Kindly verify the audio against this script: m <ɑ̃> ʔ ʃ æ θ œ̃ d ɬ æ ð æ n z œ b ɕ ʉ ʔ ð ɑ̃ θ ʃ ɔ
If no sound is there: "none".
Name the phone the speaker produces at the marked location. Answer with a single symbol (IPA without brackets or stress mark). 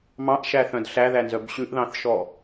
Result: ɑ̃